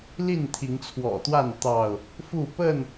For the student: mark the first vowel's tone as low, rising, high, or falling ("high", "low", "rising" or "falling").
falling